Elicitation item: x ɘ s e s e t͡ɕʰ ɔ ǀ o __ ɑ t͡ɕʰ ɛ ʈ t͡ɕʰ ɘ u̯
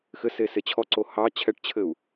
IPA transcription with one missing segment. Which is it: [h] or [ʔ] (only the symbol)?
h